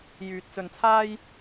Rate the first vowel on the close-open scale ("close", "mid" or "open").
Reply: close